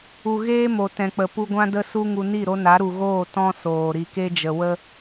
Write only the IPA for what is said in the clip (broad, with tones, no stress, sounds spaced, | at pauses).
u˨ ɣ eː˦ m o˨ t ɛ̃˨ k͡p ə˨ p u˧ ɡʷ ã˦ d ə˦ s u˦ ŋ u˧ n i˦˨ ɾ o˧ n a˨˦ ɾ u˨ ɣ oː˦˨ t ɔ̃˦ s oː˨ ɾ i˨ k e˧ d͡ʒ ə˨ w ə˦